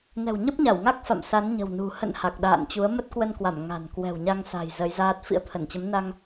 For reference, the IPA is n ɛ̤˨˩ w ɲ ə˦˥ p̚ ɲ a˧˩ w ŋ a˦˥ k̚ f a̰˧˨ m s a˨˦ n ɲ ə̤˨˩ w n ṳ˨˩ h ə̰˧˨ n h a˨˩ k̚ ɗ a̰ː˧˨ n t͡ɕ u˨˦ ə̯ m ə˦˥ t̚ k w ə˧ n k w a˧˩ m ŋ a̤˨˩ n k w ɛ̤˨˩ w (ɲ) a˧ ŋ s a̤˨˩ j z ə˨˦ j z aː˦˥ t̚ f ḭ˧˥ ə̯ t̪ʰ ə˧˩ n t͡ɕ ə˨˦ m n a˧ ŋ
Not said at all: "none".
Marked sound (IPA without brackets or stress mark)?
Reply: ɲ